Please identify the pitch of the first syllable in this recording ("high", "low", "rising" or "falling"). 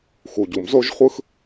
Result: low